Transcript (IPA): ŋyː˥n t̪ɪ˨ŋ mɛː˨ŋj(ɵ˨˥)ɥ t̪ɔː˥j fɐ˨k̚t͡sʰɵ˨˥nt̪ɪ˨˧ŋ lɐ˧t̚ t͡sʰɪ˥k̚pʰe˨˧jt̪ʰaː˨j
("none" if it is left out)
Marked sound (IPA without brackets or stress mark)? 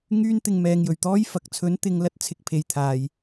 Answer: ɵ˨˩